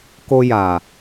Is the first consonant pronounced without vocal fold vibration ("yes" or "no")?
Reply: yes